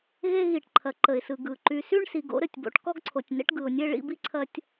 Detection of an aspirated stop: present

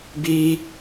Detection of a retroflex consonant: absent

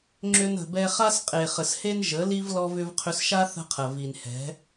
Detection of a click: present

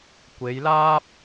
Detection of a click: absent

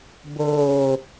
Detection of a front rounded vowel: absent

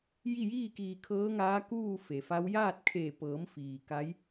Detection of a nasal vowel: absent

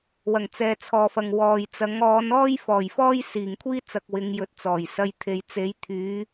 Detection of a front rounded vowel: present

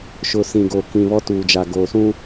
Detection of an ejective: absent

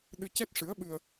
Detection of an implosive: present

